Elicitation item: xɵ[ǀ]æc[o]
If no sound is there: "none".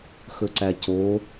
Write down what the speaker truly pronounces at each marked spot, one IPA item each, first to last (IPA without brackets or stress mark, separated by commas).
ǀ, o